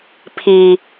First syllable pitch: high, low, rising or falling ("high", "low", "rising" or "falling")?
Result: low